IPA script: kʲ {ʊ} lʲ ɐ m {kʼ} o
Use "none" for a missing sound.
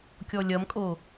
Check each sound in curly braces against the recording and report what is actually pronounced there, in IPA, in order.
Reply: ɔ, kʼ

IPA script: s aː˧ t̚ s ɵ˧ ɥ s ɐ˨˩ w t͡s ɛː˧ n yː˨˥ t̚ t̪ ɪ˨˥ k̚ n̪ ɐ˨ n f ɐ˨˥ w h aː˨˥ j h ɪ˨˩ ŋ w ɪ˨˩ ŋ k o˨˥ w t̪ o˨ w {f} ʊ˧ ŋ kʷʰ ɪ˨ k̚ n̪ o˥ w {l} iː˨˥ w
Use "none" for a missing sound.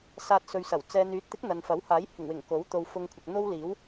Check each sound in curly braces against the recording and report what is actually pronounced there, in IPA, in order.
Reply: f, l

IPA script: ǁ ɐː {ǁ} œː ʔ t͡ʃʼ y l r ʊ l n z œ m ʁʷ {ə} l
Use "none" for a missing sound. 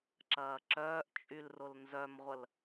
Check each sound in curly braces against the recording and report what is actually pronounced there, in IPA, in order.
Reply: ǁ, ə

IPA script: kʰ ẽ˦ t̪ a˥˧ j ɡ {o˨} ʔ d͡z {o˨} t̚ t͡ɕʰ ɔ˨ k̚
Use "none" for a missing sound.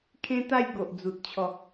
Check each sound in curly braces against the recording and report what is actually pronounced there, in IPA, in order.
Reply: o˨, u˨

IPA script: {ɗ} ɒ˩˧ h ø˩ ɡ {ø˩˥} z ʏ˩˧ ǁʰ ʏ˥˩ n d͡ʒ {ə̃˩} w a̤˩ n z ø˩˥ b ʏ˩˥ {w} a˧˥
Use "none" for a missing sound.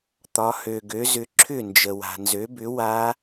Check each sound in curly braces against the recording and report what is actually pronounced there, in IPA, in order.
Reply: t̪, ø˩˥, ə˩, w

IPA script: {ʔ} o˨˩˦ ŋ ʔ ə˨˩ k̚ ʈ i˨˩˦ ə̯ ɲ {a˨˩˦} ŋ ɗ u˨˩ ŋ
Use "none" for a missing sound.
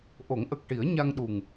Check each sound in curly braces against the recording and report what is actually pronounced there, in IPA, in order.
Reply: ʔ, a˧

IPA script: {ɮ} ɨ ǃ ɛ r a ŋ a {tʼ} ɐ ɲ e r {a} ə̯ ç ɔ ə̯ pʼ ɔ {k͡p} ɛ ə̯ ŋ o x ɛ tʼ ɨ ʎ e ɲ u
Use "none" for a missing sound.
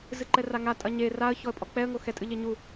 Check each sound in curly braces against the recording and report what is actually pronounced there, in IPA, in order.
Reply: z, tʼ, a, k͡p

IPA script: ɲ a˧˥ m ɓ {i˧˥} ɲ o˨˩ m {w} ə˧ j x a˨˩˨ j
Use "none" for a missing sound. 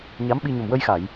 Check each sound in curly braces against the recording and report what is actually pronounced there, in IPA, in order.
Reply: i˧, w

